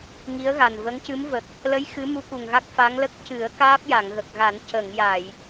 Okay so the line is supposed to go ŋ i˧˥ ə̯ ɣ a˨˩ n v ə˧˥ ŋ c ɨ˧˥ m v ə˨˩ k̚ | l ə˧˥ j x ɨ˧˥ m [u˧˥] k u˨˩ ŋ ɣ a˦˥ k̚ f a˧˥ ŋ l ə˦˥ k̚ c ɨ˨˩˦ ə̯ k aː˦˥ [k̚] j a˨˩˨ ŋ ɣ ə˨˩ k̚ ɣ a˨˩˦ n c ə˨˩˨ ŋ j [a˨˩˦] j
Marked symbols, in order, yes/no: yes, no, no

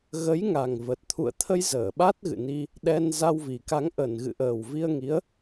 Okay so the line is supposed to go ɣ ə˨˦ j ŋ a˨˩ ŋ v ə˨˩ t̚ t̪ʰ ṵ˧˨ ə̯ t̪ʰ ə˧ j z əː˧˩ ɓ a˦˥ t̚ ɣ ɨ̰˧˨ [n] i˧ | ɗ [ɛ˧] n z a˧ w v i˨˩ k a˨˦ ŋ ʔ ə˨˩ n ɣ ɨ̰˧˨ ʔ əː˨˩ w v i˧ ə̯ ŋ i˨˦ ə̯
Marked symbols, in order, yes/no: yes, yes

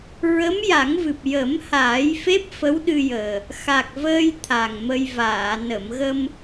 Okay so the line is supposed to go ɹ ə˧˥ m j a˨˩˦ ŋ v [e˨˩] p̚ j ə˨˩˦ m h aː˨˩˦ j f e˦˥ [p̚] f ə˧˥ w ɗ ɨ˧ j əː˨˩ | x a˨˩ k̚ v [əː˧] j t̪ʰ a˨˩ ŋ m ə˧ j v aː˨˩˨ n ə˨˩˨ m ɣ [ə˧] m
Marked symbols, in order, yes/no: no, yes, yes, yes

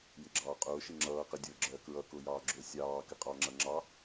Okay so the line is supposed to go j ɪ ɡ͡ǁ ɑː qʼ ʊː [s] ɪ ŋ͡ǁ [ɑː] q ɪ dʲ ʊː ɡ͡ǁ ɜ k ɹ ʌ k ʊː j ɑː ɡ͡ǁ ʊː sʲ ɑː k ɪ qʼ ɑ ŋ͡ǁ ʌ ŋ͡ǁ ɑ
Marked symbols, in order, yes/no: no, no

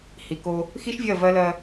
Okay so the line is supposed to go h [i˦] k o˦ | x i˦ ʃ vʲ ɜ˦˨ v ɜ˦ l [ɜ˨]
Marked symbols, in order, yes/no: no, no

